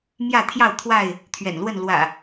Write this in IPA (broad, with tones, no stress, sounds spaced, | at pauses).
m j ä˥˨ t̪ʰ j ɑ˥˨ ʊ̯ t̪ʰ w a˥˨ ɪ̯ | t̪ʰ ɥ ɛ̰˨˩ n l w ə˥˨ n l w ä̰˨˩